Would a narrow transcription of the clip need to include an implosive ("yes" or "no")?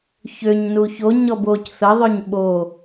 yes